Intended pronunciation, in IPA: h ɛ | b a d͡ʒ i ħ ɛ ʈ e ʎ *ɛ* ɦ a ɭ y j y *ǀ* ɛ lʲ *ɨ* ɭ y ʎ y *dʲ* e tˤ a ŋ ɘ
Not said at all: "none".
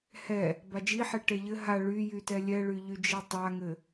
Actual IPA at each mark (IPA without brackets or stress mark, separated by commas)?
ɘ, t, ɛ, d͡ʒ